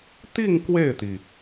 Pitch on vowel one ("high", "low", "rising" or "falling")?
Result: falling